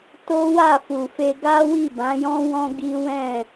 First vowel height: mid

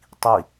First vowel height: high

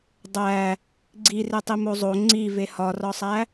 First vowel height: low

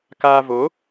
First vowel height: low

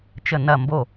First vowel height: mid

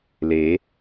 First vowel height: mid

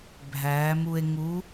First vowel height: low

